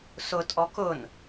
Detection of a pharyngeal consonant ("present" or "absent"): absent